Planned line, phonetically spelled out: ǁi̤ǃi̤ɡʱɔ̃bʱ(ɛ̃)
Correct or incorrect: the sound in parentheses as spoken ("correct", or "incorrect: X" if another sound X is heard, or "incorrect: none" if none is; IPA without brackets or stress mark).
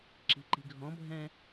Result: correct